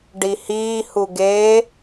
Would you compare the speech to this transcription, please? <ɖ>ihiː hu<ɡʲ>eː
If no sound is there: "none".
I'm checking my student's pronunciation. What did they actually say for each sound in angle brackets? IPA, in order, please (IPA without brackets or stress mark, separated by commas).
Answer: ɖ, ɡ